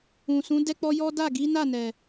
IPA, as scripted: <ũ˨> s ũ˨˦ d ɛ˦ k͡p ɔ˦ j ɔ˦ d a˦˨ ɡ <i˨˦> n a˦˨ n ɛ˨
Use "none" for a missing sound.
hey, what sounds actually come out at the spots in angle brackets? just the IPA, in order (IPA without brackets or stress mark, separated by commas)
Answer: ũ˨, i˨˦